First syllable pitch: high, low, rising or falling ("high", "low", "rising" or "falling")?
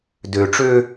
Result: low